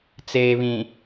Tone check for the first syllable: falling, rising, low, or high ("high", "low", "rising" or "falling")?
low